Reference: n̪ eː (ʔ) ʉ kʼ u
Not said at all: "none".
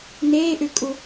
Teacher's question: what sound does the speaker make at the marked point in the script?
ʔ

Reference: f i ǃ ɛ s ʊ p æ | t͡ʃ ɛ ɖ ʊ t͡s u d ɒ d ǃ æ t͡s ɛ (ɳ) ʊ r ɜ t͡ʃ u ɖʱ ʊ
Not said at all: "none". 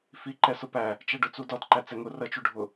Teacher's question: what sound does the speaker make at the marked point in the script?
ŋ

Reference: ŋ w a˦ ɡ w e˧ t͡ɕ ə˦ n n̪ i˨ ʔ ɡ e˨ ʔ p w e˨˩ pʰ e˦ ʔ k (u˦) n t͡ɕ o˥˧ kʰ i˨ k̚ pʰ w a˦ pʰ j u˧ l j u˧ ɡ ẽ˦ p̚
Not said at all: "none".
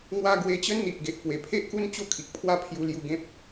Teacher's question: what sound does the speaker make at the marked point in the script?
u˦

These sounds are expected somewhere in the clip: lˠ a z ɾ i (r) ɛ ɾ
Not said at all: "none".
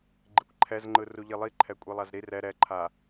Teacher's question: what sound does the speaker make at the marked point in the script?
r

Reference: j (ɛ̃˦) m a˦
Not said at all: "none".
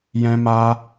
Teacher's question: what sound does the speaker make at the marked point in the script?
ɛ̃˦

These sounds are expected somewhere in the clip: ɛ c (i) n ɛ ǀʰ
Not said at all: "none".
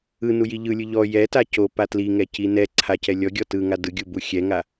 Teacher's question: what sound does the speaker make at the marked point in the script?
i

